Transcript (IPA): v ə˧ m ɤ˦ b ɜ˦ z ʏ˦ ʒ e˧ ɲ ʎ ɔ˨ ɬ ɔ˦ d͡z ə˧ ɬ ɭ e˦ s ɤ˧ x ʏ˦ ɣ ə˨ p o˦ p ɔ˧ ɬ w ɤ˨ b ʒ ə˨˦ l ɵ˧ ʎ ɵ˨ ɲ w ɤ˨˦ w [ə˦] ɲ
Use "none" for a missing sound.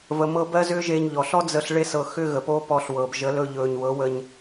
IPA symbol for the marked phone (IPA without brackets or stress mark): ə˧